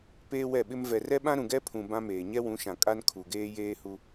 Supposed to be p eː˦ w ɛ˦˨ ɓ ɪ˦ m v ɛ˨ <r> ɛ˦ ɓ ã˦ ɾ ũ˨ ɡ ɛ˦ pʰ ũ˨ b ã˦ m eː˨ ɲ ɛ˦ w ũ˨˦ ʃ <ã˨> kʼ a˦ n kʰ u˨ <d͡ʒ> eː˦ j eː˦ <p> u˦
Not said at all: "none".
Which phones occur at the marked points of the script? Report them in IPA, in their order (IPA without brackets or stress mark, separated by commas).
r, ã˨, ɡ, h